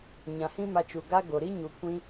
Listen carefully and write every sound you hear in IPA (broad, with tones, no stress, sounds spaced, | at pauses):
ɲ ã˨ h ĩ˦ m a˧ t͡ʃ u˨ ɡ a˦ ɡ o˨ ɾ i˦ ɲ u˨ kʷ ĩ˦